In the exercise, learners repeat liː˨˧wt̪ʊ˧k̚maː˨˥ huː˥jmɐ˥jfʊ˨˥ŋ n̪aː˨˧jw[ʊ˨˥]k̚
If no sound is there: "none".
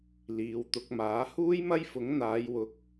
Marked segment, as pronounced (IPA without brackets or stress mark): ʊ˨˥